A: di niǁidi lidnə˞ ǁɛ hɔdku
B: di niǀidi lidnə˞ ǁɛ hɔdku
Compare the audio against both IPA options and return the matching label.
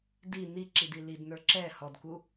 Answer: A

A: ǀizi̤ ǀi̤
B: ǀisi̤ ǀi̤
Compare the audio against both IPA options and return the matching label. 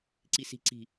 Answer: B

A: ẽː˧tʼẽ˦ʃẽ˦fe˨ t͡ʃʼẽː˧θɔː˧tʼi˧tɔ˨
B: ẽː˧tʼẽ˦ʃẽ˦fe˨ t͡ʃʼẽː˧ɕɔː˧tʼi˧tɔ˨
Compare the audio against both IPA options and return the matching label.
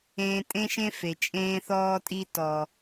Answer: A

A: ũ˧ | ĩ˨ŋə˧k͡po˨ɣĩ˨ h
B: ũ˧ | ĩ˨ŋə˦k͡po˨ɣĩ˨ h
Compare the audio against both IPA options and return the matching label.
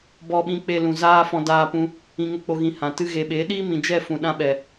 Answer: A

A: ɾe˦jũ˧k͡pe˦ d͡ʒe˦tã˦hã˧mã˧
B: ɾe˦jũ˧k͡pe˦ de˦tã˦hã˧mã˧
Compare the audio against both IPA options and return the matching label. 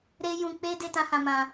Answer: B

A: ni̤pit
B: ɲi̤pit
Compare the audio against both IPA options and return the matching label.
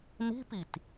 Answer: A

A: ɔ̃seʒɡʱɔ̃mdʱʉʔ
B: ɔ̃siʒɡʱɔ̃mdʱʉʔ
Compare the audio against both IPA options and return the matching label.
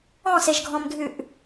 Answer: A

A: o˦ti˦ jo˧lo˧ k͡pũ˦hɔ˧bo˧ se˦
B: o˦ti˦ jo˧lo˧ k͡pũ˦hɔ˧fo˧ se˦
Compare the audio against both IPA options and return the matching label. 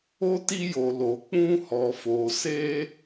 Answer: B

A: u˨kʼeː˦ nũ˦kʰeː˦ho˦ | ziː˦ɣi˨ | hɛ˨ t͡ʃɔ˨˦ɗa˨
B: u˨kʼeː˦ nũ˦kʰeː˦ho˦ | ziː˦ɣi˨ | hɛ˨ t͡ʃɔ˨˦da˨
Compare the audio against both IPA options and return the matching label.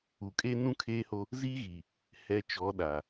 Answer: A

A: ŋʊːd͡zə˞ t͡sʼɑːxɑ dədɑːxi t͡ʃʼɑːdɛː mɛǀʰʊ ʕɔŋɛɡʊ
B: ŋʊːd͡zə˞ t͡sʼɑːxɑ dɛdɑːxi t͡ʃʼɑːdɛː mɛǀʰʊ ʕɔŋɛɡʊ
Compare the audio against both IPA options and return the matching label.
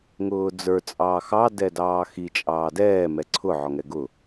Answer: B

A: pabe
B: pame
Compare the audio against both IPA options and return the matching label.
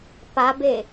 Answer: A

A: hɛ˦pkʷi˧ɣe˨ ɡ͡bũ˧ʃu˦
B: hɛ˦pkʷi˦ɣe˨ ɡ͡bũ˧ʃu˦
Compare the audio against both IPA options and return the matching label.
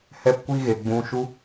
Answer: B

